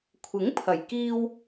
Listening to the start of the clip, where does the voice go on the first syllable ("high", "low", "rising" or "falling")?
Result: rising